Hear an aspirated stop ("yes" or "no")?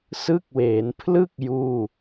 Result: yes